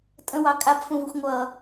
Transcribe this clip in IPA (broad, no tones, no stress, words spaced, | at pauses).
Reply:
tʼə̃wɑ kʼabfũvuxʷ ŋʷʌ